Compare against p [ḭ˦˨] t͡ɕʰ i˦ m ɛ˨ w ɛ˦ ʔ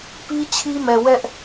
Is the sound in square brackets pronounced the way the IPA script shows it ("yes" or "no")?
no